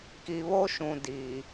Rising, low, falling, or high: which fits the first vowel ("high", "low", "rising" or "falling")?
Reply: low